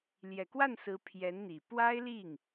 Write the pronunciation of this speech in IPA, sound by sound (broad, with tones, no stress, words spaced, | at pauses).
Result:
ljɛ˨˩kwa˥˩nsɹ̩˧˥ pʰjɛ˧˥nn̪i˨˩ pwa˥ɪ̯li˥˩ŋ